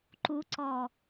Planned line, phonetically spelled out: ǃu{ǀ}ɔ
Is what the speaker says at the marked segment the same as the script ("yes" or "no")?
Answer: yes